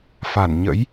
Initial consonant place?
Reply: labial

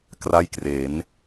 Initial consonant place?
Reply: velar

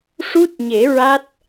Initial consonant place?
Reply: retroflex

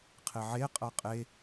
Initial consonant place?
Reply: uvular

